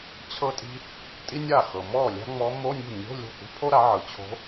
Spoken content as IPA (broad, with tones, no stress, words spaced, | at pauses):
t͡ɕʰɤ˥tʼi̤˥ | tʼi˥nʲa˥˩xɤ˨ mɔ˥˩ lʲa̤˥ŋ͡mɔ˧˥ mo˧˥˧nʲṳ˥˩ nʲo̤˧˥˧ lʲo̤˥˩k͡pṳ˥pʰo˥ ɾa˩˥ʕɯ˨ t͡ɕʰo̤˧˥